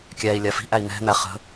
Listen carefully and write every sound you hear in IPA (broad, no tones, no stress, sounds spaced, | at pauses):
kʲ æ i̯ lʲ a f i̤ ʔ æ i̯ n̪ ɛ̤ n̪ æ χ ə̤